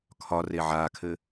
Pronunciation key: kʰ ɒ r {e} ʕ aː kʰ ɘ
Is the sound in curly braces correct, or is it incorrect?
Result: correct